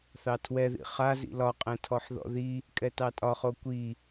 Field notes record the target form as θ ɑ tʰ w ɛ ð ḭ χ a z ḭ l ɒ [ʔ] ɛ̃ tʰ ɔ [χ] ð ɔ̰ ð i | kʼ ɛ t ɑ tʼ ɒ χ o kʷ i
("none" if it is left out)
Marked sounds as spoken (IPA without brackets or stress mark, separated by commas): qʼ, ħ